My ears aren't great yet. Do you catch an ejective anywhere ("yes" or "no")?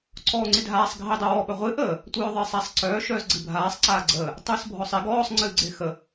no